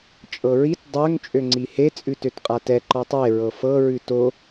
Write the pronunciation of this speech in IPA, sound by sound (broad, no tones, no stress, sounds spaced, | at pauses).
t͡ʃʼ ɤ ɹ i t dˤ ø ŋ t͡ʃʼ ø ŋ͡ǀ i h e t͡sʼ ʉ t ø t qʼ a t ɛ ǃ ɒ tˤ e ɹ ɤ f ɤ ɹ ʉ t o